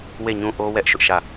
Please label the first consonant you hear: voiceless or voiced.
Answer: voiced